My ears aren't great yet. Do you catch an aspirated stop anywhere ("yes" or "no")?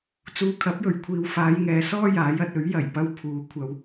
yes